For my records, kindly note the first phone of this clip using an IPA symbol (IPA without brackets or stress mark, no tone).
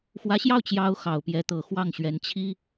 x